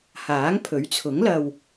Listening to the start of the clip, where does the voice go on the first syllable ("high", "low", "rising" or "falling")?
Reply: rising